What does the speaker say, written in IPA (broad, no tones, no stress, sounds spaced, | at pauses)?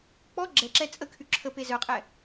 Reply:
k͡p ɔ ɡ͡ǁ ɛ ǁ ɛ t͡sʼ ə kʰ y ǁʰ ə p e z œ qʼ ɛ